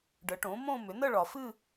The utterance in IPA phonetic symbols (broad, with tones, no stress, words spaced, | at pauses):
ɖə˩˥ʈõ˩˥ mõ˥˧mʏ˩˥ nə˥˧ɭɒ˨fɨ˥˧